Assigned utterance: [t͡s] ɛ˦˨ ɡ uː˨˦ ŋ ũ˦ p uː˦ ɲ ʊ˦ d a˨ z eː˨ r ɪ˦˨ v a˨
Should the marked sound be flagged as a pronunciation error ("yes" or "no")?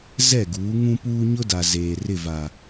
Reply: yes